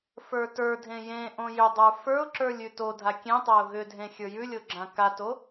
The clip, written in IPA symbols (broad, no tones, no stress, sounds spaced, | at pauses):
f ə˞ t ə˞ dʱ ẽ j ẽ ʔ õ j ʏ dˤ ə˞ f ə˞ ʊ̯ ǁ ə˞ lʲ ʉ t o dʱ a kʲ ẽ tˤ a ʊ̯ ɣ ʏ dʱ ẽ xʲ ə˞ j ʉ lʲ o ɡ͡ǁ ã k a t o